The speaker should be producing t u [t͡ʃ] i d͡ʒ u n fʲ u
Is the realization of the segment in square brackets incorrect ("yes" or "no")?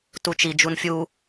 no